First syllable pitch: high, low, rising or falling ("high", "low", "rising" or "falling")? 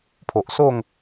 low